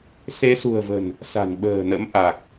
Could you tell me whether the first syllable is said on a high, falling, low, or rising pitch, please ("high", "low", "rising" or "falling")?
rising